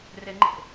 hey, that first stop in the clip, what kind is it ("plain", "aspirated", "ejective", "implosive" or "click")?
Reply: click